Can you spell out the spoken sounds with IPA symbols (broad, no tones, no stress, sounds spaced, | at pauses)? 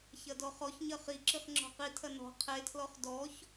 ç ɐ d ɔ χ ɔ ç ɲ ɐ χ i ǁ ɨ χ ŋ͡ǁ ɔ̤ q i tʰ ɐ n ɔ̤ qʰ e tʰ l ɔ χ d ɔ ç